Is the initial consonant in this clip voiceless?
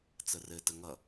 yes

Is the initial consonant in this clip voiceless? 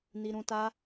no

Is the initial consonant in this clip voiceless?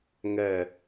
no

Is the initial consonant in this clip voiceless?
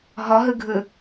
no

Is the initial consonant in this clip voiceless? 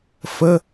yes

